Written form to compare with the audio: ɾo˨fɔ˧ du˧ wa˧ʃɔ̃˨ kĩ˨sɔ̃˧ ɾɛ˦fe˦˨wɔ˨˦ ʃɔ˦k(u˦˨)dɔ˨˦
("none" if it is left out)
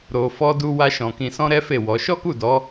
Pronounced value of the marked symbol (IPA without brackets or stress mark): u˦˨